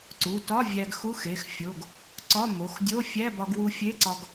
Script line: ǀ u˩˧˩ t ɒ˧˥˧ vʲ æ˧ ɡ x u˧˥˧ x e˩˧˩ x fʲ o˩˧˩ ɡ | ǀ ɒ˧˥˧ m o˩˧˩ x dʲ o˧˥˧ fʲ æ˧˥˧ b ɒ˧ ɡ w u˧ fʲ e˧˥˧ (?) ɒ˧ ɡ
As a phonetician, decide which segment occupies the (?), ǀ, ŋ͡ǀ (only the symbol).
ǀ